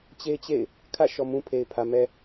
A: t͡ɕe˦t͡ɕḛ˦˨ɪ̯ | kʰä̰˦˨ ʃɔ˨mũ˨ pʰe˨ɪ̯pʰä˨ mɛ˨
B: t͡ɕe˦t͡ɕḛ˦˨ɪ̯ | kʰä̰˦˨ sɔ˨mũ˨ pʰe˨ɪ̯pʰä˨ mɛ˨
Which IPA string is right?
A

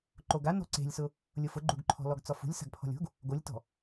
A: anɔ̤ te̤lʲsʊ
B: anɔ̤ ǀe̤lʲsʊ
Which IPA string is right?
B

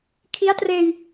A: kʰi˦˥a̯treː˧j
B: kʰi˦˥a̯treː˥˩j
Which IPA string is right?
A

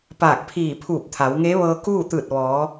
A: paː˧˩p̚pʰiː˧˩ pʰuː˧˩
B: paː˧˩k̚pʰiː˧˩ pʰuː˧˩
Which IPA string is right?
B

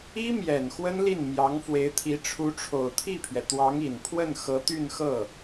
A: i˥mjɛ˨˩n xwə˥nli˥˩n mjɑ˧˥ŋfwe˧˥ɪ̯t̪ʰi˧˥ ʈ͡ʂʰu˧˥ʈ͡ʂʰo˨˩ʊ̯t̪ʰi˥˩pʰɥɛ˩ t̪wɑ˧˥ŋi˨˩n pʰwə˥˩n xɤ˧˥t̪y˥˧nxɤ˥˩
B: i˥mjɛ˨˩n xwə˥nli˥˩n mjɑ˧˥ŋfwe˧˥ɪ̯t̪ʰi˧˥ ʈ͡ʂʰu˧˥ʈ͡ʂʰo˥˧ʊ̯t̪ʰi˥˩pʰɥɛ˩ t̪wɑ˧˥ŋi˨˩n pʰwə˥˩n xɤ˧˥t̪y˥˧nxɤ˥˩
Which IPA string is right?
A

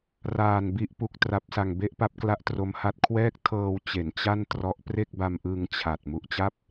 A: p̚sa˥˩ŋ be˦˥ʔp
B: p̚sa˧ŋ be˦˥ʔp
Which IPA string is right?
B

